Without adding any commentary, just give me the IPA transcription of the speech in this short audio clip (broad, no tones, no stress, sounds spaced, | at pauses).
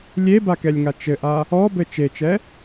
lʲ e b a k ɛ lʲ ŋ a t͡ʃ ɘ ʔ a | ɔ b ɘ t͡ʃ e t͡ʃ ɛ